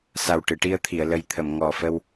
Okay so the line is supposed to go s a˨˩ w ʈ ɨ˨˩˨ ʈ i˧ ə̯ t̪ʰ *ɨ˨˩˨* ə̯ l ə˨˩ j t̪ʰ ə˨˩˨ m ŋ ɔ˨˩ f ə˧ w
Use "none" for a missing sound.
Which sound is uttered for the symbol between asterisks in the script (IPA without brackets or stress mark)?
i˨˩˨